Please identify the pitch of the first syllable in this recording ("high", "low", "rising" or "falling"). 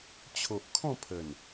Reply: low